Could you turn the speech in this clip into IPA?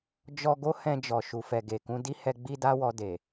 d͡ʒ ɔ˦ ɡ o˦ h ɛ̃˧ d͡ʒ ɔ˨ ʃ u˨ f ɛ˨ ɡ e˨ k ũ˨˦ d i˦ h ɛ˧ ɡ͡b i˦ d a˦ w ɔ˧ d e˨

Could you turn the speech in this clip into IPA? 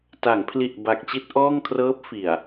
t a˩˦ ŋ pʰ l i˨˩ ʔ b a˨˩ k̚ t͡ɕ i˥˩ t̚ ʔ ɔː˥˩ ŋ kʰ r ɤː˦˥ p̚ f i˨˩ a̯

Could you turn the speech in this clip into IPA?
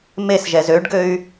m e s ʒ ɛ z ø ɖ ɡ ø y̯

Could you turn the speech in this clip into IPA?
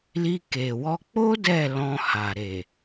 l i˧ k e˨ w ɔ˧ k͡p o˦ d ɛ˦˨ l ɔ̃˧ h a˨ ɾ e˨

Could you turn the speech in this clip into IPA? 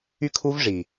y˦ kʰ u˦ v ʐ i˨

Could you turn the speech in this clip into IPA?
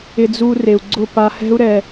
ɪ˧ d͡z u˧ r e˨ u̯ ɡ͡ǀ ʊ˦˨ p a˧ h ɛ̤˦ u̯ ɾ ɛ˧

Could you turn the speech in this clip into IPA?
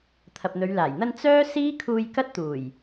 t̪ʰ ɐ˨ p̚ n̪ ɵ˨˧ ɥ l aː˨˩ j n̪ ɐ˧ n t͡s œː˥ s iː˥ kʰ uː˧ j k ɐ˥ t̚ t̪ uː˨˩ j

